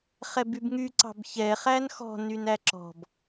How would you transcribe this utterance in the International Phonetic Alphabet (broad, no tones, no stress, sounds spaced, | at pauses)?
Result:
χ ɛ b y b ŋ y ǀ ɑ̤ b ç ɛ χ æ n x ɔ̤ n y n æ ǁ ɔ̤ b